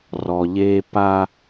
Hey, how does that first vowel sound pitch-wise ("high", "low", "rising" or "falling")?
low